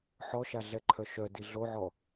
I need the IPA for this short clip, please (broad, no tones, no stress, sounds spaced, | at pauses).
ħ ɔ ʃ a ɮ ɛ ǃʰ œ ʃ œ d i ɮ o ʕ ɔ